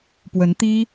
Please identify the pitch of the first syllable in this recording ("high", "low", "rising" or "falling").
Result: rising